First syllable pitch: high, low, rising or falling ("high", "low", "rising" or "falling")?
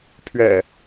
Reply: low